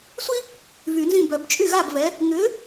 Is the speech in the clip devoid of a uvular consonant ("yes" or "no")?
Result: yes